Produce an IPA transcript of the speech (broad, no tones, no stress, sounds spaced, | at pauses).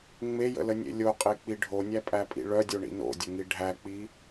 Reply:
ŋ͡m e j ə̰ l ə nʲ ḛ lʲ o qʼ e k͡p i ɖʱ o nʲ æ pʼ æ pʼ ḭ ɭ œ dʲ o ɳ ḭ n o̰ dʲ ə ŋ i ɖʱ æ k͡p i